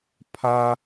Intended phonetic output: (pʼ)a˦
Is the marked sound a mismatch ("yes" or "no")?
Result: yes